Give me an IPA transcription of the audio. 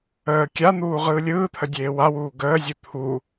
əː kʲan̪uː ʁɯːlʲɯːt̪ʰə dʲeːwawuː ɡəːzʲɯ t̪ʰu

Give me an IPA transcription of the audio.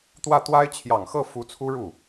t̪wä˥˩t̪wa˥ɪ̯ t͡ɕʰjɑ˨˩ŋxɤ˥˩fu˧˥ t͡sʰu˥ɻu˥˩

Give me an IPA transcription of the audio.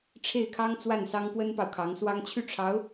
ʈ͡ʂʰe˥˩ɪ̯kʰɑ˥ŋt͡swa˥˩nsɑ˥ŋ pwə˥npɑ˨ʊ̯kʰɑ˧˥ŋswɑ˥ŋ t͡ɕʰy˥˩ʈ͡ʂʰɑ˧˥ʊ̯

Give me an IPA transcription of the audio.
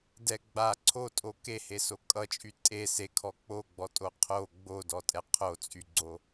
dɛ ɡ͡ba ǀʰotʼo keheso kʼʌt͡ʃʼy tʼe sekʰɔ k͡poɡ͡bɔtʼo qʰo ɡ͡bodɔtʼɛ qʰot͡sʼyɡ͡ǀo

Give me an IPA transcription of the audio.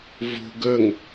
vo̤ ɡœŋ

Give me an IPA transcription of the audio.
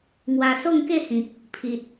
ŋwa˧ so˥˧ŋke˥˧hĩ˨k̚ | pʰi˨t̚

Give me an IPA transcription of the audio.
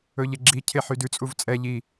ɵʎeɡ͡ǁi cʰeħydʉ t͡sʼuvt͡sʼɛ ʎi

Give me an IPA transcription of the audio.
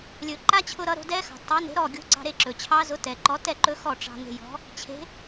lʲɵ˩ǃa˦˥t͡ɕʰʊ˧ ɾʌ˨˥ɾo̤˨˥ dɛ˦˥xɑ̤˩ tˤɑ˨˥ne̤˨˥ɾɔ˥˩ ɡʲo̤˦˥ǀɑ̤˧ ɾe˥˩ǁɵ˩t͡ɕʰɑ˦˥ zʊ˨˥tɛ˩ǃɔ˨˥tɛ˥˩ ǃɵ˦˥xɔ˥˩ ʈ͡ʂɑ̤˧ne̤˧ jɔ̤˨˥ | t͡ɕʰe̤˨˥

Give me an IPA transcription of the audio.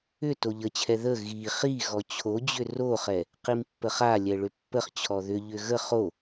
ʏ toʎət͡ɕʰɛ ðə ɣi χi ɣɔt͡ɕʰod͡ʑʏ roχɛ | qimpːəχalʲɛ ɭʏpːəχt͡ɕʰɔ ðʏʎʏ ɣə χo

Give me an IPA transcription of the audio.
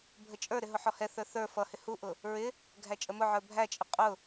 bʱət͡ʃʼə˞ɾɪ ɦʊħɔhɛθə˞ θə˞ fʌhɪ huʔʊ | ɹɪ | ɡʱæt͡ʃʼəmʊʕə˞ bʱæt͡ʃʼə qʼʊ

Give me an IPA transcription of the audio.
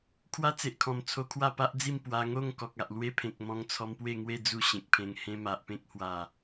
kʰwa˦t͡se˨ʔkʰɔ̃˨˩m t͡sʰo˧kʰwa˥˧ pa˦ʔd͡zi˥˧m pwa˧ŋo˥˧ŋ kɔ˨k̚ a˨ʔlwe˦ pʰẽ˨k̚ mɔ̃˧ŋt͡sʰɔ˧mpwe˥˧ŋwe˥˧ d͡zu˥˧ɕẽ˨k̚pʰẽ˧ŋ hẽ˧ ma˨ʔpẽ˦k̚hwa˨˩

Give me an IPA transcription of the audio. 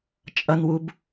t͡ʃʼʌnwub

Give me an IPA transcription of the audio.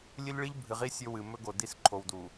lʲɨ˦ʎɭi˦ʎ bʱɨ˨ʁi˦ sʲɵ˦ wɨ˨mɵ˦ɡo˨ di˦sǃʰo˨wdu˨

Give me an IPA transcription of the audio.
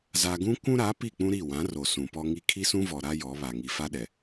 za˨ɡũ˦kʷũ˦ɾa˨˦ pi˦˨k͡pũ˦ɾi˦˨wã˨˦ ro˨sũ˨pɔ˦ŋi˦ kʰi˦sũ˦vɔ˨ ɾa˦ jɔ˨˦βa˨ ŋi˨fa˦ɗɛ˨

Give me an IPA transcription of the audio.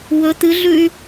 wɵ t̪ɨɮʉy̯

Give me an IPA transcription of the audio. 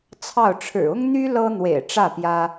t͡sʰɑ˥˩ʊ̯ ʈ͡ʂʰɻ̩˨˩ʊ˥ŋ n̪y˥ lɤ˥ n̪wḛ˨˩ɪ̯ ʈ͡ʂä˥˩pjä˥

